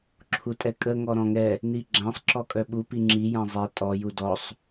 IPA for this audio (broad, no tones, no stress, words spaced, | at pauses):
ǁʰutʼɛkʼə ŋɔɾɔ̃ŋɛ | niɡ͡ǁãsˤ ǁɔkʼœɓu piŋ͡ǁi jãzˤɛ tʼɔ judɔsˤ